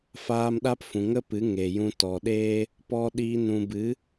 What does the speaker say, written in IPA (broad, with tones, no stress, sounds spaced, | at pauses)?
f aː˧ m ɗ a˦ p f ũ˨ ŋ ə˦ p ɨ˨˦ ŋ e˨ j ũ˧ t ɔ˨ ɗ eː˦ | p ɔ˧ ɗ iː˧ n ũ˨ b ɨ˨˦